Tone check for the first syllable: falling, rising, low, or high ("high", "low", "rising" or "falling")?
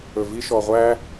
low